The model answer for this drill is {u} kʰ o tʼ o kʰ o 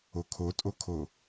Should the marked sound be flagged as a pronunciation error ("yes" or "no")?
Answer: yes